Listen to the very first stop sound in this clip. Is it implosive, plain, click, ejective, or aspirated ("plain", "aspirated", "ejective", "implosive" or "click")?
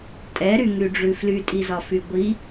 ejective